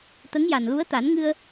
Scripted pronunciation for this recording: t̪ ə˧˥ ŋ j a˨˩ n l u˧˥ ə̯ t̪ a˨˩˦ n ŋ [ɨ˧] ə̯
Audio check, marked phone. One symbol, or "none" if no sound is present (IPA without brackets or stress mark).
ɨ˧